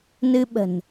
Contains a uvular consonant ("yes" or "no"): no